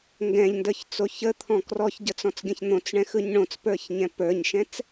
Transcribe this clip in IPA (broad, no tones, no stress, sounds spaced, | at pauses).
ŋ ɡ ɛ̃ ʎ n d ə˞ ç t͡s o ç ə t̪ʰ ɔ̃ k r ɔ ç ɟ ə t͡s ɔ̃ t͡s ɡʲ ə̃ ç n̪ õ t͡s ɳ ɛ̃ x ɯ ɲ ɳ õ t͡s p ə˞ ç ɲ ɛ̃ p ə˞ ɲ ʃ ɛ̃ t͡s